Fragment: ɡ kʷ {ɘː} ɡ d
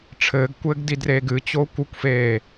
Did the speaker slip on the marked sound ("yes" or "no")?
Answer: no